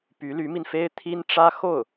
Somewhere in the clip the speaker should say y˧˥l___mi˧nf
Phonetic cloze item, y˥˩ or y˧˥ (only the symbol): y˧˥